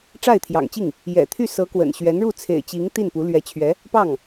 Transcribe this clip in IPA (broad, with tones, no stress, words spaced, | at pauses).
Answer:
ʈ͡ʂa˥˩ɪ̯t̪ʰjɑ̰˨˩ŋt͡ɕi˥˩ŋ | jɛ̰˨˩t̪ʰy˥˩sɤ˧˥kwə̰˨˩n ɕɥɛ˧˥nɻu˥˩t͡sʰḛ˨˩ɪ̯t͡ɕi˧˥ŋ t̪i˥˩npu˧˥ lɥɛ˧˥t͡ɕʰɥɛ˧˥ | pɑ˥˩ŋ